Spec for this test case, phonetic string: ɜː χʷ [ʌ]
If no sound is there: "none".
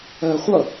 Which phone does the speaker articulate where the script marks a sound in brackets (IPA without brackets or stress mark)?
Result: ʌ